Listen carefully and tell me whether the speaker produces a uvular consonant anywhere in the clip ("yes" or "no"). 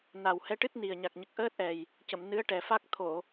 no